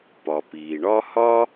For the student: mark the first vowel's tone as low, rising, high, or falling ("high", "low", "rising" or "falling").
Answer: low